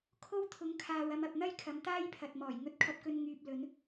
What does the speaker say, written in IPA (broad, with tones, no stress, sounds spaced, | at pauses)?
kʰ o˥ w t̪ʰ ʊ˨˥ ŋ kʰ aː˨ w ɐ˧ m ɐ˨ p̚ n̪ ɐ˥ j kʰ ɐ˨˥ m t̪ aː˥ j pʰ ɐ˨ t̚ m ɔː˨˩ j ŋ ɵ˧ t̚ kʰ ɐ˧ p̚ k ɵ˧ n ŋ yː˧ p̚ l ɵ˨˥ n